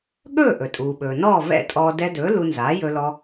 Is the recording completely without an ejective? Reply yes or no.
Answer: no